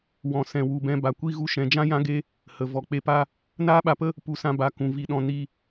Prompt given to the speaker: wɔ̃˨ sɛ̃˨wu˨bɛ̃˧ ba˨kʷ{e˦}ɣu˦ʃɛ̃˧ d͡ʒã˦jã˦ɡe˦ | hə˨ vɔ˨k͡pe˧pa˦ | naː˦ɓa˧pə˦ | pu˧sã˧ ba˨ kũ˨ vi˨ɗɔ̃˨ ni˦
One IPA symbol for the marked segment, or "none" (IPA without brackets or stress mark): i˦